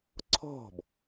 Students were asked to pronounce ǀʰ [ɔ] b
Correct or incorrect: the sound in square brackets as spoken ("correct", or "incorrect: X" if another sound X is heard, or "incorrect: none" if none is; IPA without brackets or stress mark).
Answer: incorrect: ɔ̤